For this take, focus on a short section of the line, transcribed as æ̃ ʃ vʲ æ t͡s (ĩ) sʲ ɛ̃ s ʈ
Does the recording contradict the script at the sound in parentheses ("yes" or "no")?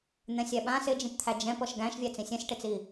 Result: no